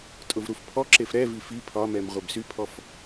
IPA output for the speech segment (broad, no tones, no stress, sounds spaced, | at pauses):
tʼ ʊ v ɾ u f pʰ ɔ ǁ e f ɾ ɛ v i f i pʰ ɒ m ɛ m ʁʷ e b s y pʰ ɔ f